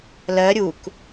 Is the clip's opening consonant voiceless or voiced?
voiced